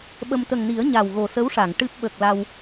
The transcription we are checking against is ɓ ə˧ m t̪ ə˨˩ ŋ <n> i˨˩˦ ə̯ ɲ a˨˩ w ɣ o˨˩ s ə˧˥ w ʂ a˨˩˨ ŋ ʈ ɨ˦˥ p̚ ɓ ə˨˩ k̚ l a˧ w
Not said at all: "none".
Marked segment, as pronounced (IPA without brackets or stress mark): n